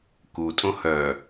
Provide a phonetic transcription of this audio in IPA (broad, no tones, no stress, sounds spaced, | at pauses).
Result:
k u tʼ õ h œ